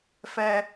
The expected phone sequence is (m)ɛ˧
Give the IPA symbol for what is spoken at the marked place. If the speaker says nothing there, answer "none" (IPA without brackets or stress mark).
f